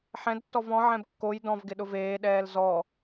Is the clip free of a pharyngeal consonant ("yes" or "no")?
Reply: no